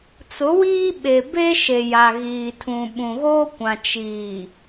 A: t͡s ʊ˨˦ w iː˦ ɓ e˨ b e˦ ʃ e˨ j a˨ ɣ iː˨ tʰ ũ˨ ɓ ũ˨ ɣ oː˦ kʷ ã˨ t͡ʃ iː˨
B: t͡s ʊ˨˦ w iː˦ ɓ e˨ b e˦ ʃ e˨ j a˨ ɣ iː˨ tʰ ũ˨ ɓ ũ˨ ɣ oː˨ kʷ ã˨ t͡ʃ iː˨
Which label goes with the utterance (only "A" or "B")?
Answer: A